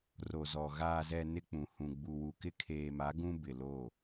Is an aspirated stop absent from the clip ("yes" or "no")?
no